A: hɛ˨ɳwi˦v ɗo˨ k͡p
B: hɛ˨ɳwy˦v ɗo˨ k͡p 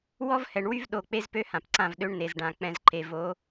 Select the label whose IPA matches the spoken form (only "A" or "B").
B